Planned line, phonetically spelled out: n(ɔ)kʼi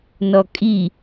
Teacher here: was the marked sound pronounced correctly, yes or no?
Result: yes